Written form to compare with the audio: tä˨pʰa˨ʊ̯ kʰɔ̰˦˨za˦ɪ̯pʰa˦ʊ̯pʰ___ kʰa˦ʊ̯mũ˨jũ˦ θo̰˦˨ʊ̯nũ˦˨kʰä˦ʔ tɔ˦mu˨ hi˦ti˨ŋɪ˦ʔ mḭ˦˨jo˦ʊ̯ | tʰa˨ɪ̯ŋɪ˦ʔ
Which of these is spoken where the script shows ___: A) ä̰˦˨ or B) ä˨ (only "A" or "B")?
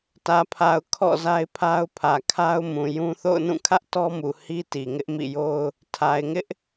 B